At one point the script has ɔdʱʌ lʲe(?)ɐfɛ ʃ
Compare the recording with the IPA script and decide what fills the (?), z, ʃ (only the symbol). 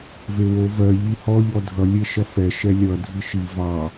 ʃ